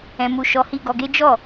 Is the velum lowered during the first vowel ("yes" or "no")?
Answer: yes